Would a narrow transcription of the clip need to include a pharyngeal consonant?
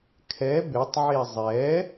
yes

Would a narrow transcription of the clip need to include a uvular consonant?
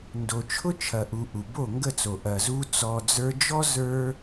no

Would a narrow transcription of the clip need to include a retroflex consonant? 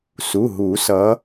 no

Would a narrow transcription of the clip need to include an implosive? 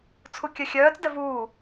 no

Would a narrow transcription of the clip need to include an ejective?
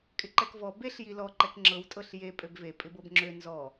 yes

